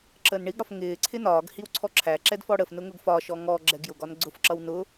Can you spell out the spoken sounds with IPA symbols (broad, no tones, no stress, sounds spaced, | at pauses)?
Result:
ǁ əː n ɳ i ɡ ɽ ɒ f ŋ ɪː ǀʰ ɪ n ɒː ɡ h i w ǀʰ ɔ ǁʰ æ ǁ ɛ d f ɔ ɽ ə f n ʊ ŋ ʊ ɡ f ɒ ʃ ɔ ŋ ɔ ɡ͡ǁ ɛ ɡ j ʊ ɡ ɒ n ɡ͡ǀ ʊ f ǁ ʌ w n ʊ